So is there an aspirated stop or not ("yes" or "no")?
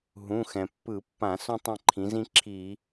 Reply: yes